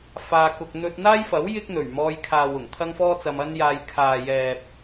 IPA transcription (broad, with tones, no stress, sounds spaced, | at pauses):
f aː˧ k ʊ˧ k̚ n̪ ɵ˧ t̚ n̪ aː˥ j f ɐ˨˥ w j ɪ˥ k̚ n̪ ɵ˨˩ ɥ m ɔː˧ j kʰ aː˨ w ʊ˨˩ ŋ t̪ʰ ɐ˥ ŋ f ɔː˥ t͡s ɐ˧ m ɐ˥ n j aː˧ j kʰ aː˨ j ɛː˨ p̚